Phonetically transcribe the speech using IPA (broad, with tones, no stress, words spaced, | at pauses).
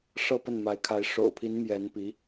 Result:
ʂɤ˥˧pə˥˩nma˧˥ɪ̯kʰa˧˥ɪ̯ ʂo̰˨˩ʊ̯pʰi˧˥n mjɛ˧˥n pi˧˥